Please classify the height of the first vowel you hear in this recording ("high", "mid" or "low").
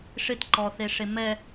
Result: high